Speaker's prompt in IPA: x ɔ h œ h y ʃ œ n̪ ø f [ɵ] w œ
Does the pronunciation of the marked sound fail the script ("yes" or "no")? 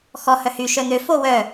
yes